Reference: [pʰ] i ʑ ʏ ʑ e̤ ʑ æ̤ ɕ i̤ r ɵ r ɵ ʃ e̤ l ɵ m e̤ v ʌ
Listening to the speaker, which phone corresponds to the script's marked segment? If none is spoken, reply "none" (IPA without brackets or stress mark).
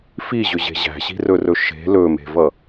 f